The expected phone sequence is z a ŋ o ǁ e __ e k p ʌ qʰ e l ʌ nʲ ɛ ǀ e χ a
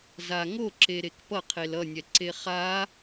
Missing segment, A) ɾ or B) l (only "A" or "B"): A